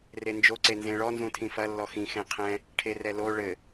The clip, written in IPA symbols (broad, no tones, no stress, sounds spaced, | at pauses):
r e n d͡ʒ o ǀ e n z ẽ ɭ ɔ n z ũ tʰ ĩ f ɐ lː ɔ x ĩ x ẽ qʰ ɛ̃ | ʈʰ e r ɛ l o ɭ ɘ